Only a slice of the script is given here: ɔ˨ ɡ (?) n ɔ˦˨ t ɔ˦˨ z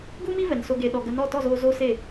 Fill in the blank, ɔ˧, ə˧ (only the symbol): ə˧